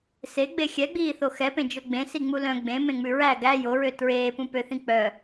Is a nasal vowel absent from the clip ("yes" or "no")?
no